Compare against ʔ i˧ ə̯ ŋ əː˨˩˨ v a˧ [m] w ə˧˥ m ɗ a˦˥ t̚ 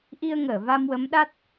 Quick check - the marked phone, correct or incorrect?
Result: correct